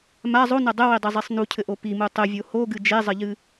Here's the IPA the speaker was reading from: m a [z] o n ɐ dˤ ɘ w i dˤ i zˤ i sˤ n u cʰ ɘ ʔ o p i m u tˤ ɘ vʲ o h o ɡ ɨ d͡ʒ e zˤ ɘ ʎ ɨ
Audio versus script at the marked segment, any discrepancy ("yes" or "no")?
yes